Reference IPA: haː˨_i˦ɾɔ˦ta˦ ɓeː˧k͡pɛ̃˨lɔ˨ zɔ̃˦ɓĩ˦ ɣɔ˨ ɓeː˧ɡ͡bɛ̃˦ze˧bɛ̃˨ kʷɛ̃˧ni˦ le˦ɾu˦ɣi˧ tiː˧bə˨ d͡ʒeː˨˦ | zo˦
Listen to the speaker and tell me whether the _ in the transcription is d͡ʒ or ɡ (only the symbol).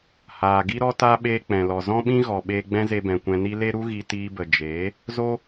ɡ